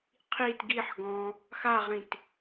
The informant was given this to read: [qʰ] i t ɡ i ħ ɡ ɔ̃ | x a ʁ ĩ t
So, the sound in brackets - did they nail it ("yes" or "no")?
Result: yes